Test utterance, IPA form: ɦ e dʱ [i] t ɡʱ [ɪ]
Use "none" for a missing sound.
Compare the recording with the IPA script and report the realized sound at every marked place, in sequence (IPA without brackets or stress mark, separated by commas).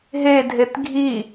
e, i